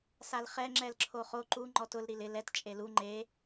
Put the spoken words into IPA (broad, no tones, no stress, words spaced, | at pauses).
salχɛ ŋ͡ǁɛlǁʰoχo ǃu ŋ͡ǃɔtʊl ɾilɪ lɛt t͡ʃʼelu ŋ͡ǃe